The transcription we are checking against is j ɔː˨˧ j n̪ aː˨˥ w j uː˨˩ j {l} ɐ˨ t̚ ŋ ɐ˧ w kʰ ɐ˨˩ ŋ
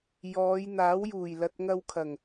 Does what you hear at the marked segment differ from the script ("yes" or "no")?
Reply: no